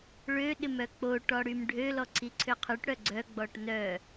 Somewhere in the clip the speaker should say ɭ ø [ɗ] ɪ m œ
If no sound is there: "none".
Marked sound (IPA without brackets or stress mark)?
ɗ